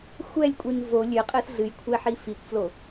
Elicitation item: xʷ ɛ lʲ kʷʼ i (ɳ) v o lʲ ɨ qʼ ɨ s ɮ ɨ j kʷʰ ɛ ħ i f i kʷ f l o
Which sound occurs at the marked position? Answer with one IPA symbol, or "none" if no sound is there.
n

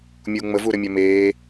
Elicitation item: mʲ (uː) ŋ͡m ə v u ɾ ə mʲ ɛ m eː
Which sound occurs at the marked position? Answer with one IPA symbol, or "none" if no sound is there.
uː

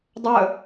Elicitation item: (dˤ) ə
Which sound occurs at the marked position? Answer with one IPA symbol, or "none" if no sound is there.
dˤ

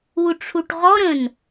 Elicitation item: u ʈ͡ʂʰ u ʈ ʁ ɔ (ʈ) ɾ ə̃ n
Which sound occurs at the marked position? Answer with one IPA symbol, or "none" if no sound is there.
none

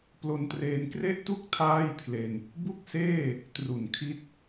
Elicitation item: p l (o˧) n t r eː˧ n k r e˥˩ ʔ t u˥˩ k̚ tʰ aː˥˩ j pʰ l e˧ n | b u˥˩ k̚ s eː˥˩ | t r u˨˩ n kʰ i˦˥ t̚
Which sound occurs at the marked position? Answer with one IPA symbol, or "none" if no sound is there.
o˧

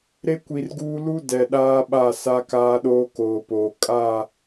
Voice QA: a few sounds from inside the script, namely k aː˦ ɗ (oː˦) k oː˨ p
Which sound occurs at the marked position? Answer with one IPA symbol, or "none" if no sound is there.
oː˦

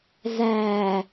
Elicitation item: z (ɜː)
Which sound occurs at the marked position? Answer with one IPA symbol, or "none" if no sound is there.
æː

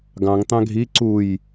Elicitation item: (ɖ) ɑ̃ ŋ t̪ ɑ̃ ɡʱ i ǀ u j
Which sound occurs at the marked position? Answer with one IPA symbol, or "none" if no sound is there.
ɡ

